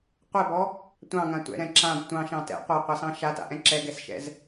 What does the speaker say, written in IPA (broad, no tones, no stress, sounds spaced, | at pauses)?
qʷ ɛ b ɔ | tʷ ɑ̃ ŋ ã tʷ ɛ̰ ɾ ɛ̃ ǁ ã b tʷ ɑ̃ ʃ ɑ̃ t ɛ̰ qʷ ɑ qʷ ɑ s ɑ̃ ʃ a t a̰ ʔ ɛ̃ ǁ ɛ ɡ ɛ s ʃ ɛ̰ z